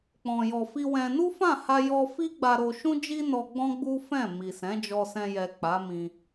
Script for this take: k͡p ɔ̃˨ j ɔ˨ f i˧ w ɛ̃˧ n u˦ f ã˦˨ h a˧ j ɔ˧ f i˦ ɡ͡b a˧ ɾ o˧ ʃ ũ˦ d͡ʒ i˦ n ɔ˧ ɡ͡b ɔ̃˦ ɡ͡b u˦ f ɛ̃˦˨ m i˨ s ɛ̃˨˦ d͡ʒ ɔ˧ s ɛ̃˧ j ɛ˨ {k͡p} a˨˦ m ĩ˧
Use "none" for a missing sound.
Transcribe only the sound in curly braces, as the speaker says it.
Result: k͡p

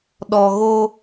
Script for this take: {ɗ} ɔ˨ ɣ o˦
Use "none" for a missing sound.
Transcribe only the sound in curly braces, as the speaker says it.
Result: ɗ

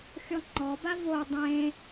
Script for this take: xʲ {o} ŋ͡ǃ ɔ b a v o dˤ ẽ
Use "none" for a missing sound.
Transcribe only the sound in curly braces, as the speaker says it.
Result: ɔ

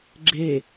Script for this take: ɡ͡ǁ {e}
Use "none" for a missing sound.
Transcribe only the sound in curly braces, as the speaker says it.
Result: e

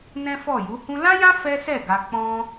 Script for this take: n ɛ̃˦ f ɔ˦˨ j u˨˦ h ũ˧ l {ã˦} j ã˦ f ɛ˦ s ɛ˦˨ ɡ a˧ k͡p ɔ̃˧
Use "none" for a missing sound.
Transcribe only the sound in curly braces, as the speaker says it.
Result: ã˦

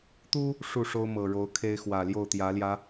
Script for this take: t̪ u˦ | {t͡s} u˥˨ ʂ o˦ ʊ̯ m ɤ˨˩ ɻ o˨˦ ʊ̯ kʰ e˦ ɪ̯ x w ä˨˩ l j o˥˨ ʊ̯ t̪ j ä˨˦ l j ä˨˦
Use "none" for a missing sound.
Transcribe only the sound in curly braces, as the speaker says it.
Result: ʂ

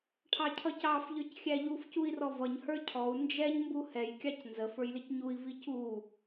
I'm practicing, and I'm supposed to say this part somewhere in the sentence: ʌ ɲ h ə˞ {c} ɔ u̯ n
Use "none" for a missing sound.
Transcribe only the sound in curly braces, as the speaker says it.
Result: cʰ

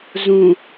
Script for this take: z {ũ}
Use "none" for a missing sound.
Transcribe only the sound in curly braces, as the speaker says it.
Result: ũ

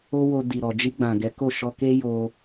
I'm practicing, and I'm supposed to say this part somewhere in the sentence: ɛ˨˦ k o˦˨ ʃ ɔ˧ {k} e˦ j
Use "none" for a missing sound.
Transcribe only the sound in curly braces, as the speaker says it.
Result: k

